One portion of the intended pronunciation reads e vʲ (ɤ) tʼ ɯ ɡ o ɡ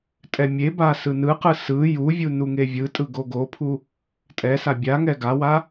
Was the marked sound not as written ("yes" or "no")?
yes